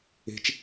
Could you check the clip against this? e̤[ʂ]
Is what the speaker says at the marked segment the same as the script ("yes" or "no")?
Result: no